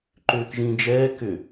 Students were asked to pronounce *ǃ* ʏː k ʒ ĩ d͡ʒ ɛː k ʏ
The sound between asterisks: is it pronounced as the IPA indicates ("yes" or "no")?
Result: yes